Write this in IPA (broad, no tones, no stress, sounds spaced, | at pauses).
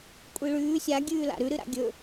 kʷʼ i ɭ ʉː sʲ a ɡʲ ʉː l a̰ ɾ ʉ ɾ ɨ ɾ a̰ ɡʲ ɵ